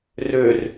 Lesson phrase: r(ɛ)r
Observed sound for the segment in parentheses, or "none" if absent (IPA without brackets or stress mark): ø